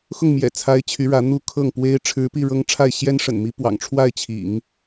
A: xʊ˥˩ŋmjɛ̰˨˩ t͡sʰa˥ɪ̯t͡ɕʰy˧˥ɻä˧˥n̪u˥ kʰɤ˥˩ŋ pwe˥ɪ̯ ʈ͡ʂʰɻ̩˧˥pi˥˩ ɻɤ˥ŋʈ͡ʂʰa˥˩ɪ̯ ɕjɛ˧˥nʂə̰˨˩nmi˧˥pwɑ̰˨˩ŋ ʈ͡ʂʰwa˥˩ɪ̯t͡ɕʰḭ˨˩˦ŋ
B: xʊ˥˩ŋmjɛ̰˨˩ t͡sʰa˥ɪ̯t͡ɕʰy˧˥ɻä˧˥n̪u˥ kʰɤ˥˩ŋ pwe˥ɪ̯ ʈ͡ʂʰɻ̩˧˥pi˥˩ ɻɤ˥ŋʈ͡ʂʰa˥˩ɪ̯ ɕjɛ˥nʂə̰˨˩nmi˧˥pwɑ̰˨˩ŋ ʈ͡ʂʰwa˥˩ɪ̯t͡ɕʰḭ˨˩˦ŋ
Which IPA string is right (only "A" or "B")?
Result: B